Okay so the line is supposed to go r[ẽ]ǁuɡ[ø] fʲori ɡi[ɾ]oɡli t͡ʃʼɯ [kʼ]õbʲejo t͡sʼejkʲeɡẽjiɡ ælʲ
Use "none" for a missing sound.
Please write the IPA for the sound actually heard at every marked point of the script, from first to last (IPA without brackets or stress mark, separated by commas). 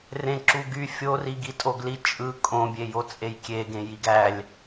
ẽ, y, tʼ, kʼ